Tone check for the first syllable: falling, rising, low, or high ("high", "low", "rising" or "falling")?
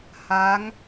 rising